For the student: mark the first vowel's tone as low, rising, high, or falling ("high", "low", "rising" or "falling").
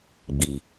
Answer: low